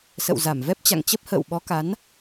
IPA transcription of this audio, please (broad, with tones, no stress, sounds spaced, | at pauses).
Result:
s ə̰˧˨ w z a˧˩ m v ɛ˦˥ p̚ t͡ɕ a̰˧˨ ŋ t͡ɕ ə˦˥ p̚ h ə̰ː˧˨ w ɓ ɔ˨˦ k a˨˦ n